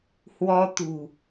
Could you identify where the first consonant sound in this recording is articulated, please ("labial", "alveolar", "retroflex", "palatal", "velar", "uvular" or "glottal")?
glottal